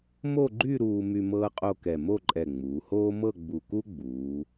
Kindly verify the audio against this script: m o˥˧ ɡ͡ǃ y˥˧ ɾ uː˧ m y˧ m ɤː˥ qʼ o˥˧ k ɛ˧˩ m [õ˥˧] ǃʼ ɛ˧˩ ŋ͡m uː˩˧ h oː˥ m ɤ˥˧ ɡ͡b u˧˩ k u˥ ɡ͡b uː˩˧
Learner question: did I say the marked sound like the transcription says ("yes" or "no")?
no